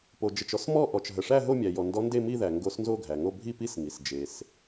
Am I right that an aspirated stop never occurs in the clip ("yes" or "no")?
yes